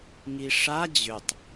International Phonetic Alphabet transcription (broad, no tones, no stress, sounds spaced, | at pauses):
ŋ i ʂ a d͡ʑ ʏ tˤ